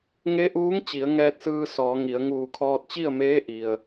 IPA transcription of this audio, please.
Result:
ŋ e˧˥ ʔ uː˧˥ ŋ t͡ɕ i˩˧ ə̯ ŋ ɛː˧ t̚ s ɯː˧ s ɔː˩˧ ŋ i˩˧ ə̯ ŋ uː˧˩ kʰ ɔː˧ t̚ t͡ɕ i˥˨ ə̯ m eː˧˥ ʔ i˩ ə̯

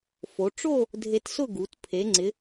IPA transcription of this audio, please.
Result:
f o˩˧ ʈ͡ʂ o˥˧ | dʱ e˧ t s ʊ˥˧ ɡ u˩˧ t pʰ e˩˧ ŋ͡ǀ ɪ˩˧

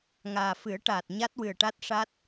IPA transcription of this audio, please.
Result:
ŋ aː˨˩ f ɨ˨˩˦ ə̯ ʈ aː˨˩ t̚ ɲ a˦˥ t̚ w ɨ˨˩ ə̯ ʈ a˦˥ t̚ ʂ a˦˥ t̚

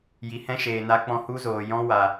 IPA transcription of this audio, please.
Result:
j i˧ h ɛ̃˦ ʃ eː˧ n a˦ k͡p ɔ̃˦ h u˦ z oː˧ j ɔ̃˦ w a˧

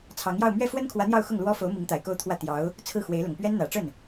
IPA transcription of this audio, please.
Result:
t͡sʰ ɑ˧˥ ŋ j ɑ˥˧ ʊ̯ m ɥ ɛ˥˩ f w ə˥ n kʰ w ä˧˥ n̪ j ɑ˥˧ ʊ̯ x ʊ˥˩ ŋ l w ɔ˥ f o˧˥ ʊ̯ m i˧˥ ŋ t̪ a˨˩ ɪ̯ k o˥˧ ʊ̯ t̪ʰ w ä˥˩ t̪ j ɑ˧˥ ʊ̯ | t͡sʰ ɹ̩˥˩ x w e˧˥ ɪ̯ l ʊ˨˩ ŋ p ɥ ɛ˥ n n̪ ä˨˩ ʈ͡ʂ ə˥˩ n

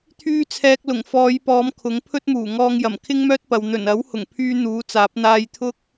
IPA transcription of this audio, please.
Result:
t̪ʰ yː˧ t͡sʰ ɛː˨ k̚ l ʊ˨˩ ŋ f ɔː˨˧ j p ɔː˨˧ m kʰ ʊ˨˥ ŋ pʰ ɵ˥ t̚ m uː˨˩ ŋ ɔː˧ ŋ j ɐ˨˩ m kʰ ɪ˥ ŋ m œː˥ t̚ p ɐ˨ w n̪ ɵ˨˩ n ɐ˨˥ w h ʊ˨˩ ŋ pʰ yː˧ n̪ uː˨˥ t͡s aː˨˥ p̚ n̪ aː˧ j t̪ʰ ʊ˥ k̚

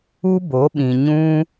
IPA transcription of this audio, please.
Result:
u˦ b o˨˦ ɓ ĩ˨ ɲ ũ˦

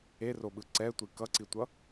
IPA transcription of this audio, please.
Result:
e r o ɓ ɯ ǀ ɛ tʷ i k ʌ ǀ i tʷ ʌ

